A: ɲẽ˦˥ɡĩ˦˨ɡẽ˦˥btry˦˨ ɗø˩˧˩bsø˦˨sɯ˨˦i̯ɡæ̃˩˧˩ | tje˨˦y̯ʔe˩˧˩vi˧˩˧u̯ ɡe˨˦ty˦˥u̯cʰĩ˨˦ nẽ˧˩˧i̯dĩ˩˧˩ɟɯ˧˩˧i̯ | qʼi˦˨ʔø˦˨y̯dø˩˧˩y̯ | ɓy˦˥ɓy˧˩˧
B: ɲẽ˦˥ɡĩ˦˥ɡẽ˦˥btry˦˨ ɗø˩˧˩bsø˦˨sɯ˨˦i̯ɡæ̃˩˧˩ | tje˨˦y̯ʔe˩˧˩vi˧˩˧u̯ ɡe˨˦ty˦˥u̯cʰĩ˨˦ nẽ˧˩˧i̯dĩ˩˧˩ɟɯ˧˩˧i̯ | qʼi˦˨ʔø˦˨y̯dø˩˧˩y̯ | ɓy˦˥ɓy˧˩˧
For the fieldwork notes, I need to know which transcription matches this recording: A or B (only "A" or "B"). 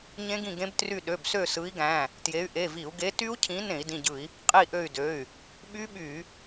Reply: A